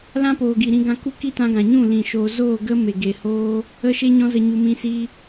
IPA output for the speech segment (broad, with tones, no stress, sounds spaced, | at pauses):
l ã˦ p oː˨ ɡ i˨ ɾ ĩ˧ ɡ ã˧ k u˦ k i˦ t ã˧ ɡ ã˨ ɲ ũ˦˨ l ĩ˨ ʃ oː˨ z oː˦˨ ɡ ə˦ m e˨ ɡ e˨ h oː˦ | ə˦ ʃ e˦ ɲ ɔ̃˦ z ə˧ ɲ u˧ m ĩ˦ s i˦